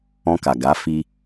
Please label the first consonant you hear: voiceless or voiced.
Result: voiceless